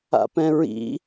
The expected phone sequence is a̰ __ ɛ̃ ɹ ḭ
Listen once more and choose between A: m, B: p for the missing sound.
B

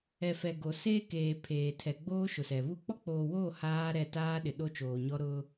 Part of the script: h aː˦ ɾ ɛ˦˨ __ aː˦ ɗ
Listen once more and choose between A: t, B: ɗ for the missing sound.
A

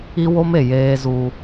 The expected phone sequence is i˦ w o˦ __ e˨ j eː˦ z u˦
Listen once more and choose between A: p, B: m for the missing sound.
B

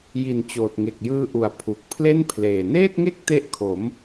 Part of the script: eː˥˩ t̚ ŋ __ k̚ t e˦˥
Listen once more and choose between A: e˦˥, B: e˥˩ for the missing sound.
B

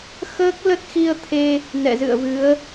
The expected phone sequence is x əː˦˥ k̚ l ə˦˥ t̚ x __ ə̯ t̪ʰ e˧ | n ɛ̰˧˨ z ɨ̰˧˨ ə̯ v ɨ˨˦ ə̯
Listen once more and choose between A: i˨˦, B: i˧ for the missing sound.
B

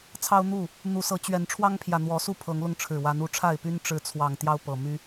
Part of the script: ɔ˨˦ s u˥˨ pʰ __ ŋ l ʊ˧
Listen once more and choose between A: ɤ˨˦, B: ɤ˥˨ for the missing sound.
A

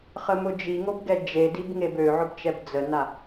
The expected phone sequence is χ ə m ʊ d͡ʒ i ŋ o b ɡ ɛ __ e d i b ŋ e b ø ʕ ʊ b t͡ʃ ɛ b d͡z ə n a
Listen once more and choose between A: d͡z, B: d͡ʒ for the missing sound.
B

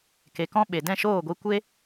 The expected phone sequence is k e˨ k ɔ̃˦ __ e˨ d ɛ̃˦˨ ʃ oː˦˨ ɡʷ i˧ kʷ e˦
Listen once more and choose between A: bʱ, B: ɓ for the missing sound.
B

